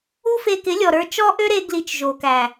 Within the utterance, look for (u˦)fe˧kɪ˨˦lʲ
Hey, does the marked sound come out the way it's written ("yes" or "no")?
yes